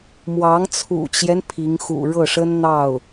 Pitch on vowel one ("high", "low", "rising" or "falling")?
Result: rising